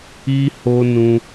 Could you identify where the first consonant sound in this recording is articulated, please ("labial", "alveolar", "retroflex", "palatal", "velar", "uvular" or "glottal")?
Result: glottal